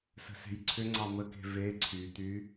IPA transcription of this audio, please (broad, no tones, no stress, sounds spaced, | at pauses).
s ə̤ s e̤ j ǀʰ ʏ ŋ͡ǀ ɑ m ə k e̤ v e ǀʰ y t̪ y